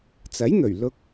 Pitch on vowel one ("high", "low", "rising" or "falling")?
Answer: rising